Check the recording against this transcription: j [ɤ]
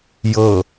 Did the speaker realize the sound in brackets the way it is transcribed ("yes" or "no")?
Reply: yes